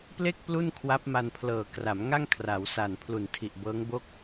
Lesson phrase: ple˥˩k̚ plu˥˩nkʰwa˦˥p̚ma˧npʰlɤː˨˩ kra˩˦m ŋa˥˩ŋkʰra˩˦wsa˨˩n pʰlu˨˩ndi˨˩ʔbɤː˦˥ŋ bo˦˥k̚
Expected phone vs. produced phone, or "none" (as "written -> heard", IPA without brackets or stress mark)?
d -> tʰ